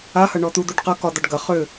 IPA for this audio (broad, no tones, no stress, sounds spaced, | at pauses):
a h ɐ ɳ ɔ t̪ u d̪ u ɖ q ɐ k ɒ d̪ ɒ ɖ ɡ ɐ χ ʏ